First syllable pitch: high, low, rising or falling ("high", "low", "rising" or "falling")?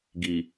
low